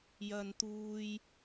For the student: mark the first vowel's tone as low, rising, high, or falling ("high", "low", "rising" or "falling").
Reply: high